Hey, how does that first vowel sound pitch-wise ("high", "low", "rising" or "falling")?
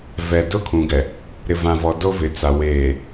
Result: low